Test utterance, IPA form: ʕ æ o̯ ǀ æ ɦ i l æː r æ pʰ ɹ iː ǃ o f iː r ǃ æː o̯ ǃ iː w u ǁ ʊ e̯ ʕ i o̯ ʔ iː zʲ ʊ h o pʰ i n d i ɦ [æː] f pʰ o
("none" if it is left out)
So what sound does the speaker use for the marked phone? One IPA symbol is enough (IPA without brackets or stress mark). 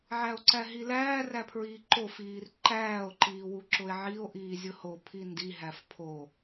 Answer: æ